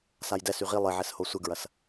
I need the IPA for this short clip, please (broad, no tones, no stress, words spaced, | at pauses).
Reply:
sajdɛs yʁi lˠɪʕɛsho sʷɪɡɹɐs